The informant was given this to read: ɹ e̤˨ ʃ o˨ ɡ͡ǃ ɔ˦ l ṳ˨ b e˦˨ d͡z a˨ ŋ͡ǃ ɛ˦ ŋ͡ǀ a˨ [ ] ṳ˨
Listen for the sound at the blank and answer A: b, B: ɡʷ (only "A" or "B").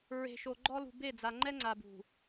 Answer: A